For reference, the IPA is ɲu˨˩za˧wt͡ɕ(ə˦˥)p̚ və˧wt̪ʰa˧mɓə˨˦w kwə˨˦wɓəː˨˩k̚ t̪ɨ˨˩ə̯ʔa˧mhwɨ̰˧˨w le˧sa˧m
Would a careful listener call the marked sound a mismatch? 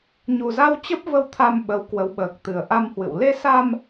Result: no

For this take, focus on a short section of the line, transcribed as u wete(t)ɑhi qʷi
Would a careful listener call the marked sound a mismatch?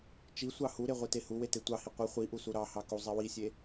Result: yes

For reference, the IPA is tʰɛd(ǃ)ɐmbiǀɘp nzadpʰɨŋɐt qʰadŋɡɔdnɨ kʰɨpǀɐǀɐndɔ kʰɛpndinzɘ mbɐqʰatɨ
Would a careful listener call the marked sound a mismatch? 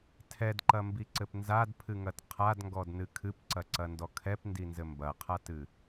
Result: no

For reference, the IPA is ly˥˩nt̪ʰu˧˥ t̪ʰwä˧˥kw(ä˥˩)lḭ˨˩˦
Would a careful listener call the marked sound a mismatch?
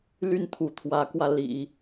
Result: yes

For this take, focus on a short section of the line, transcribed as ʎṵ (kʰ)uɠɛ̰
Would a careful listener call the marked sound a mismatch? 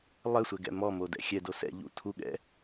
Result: yes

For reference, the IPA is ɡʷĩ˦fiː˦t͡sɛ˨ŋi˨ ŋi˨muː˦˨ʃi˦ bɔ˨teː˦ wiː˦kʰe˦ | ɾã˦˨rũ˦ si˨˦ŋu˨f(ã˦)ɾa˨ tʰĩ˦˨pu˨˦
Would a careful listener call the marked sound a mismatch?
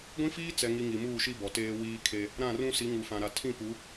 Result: yes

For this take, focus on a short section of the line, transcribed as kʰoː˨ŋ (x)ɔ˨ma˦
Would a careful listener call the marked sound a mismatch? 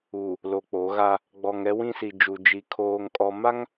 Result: yes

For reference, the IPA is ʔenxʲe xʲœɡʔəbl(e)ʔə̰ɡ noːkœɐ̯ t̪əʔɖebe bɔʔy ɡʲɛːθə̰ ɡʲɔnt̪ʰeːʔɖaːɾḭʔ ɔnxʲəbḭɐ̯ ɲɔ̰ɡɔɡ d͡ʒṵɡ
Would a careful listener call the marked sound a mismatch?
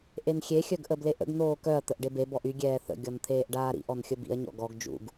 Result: no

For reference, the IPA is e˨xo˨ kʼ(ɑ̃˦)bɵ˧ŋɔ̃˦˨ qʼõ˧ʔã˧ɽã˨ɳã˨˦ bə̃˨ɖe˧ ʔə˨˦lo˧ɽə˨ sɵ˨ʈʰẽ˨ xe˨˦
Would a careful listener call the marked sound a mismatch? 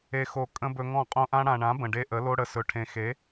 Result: yes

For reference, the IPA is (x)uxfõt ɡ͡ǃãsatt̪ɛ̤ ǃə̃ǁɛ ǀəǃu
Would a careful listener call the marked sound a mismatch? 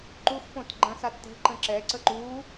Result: yes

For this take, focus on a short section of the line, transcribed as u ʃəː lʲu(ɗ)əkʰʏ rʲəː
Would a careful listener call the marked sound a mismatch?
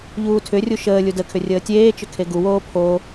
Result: yes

